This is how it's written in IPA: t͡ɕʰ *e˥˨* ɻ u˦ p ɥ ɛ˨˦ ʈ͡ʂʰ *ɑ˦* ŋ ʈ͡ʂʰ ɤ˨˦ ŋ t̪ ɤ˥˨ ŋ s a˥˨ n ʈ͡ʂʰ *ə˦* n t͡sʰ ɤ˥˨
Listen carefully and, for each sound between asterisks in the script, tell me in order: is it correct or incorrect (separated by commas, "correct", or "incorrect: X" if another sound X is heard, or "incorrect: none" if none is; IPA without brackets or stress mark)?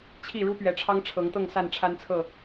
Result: incorrect: i˥˨, correct, incorrect: a˦